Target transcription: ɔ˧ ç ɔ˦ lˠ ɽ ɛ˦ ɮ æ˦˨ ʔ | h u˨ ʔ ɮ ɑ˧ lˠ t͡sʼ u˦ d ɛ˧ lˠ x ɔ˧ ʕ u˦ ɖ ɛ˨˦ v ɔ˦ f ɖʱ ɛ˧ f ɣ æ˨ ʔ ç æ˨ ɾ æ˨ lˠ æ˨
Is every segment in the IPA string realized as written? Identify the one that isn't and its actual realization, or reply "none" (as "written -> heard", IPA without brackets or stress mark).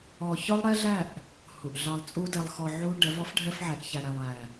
ɣ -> ʕ